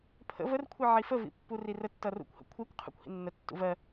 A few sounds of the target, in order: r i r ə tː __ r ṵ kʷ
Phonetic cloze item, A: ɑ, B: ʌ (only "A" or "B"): B